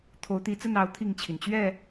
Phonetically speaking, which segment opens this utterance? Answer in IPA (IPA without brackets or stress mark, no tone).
t̪ʰ